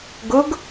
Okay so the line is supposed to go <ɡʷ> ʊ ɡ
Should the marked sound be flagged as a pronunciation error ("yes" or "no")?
yes